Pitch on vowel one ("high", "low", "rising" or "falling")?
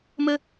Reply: high